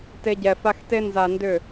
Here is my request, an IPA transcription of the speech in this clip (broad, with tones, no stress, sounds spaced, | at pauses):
t e˦ ɟ ɛ˧ f a˦ x t e˦ n z a˧ n d ʏ˦˨